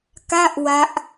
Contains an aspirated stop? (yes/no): no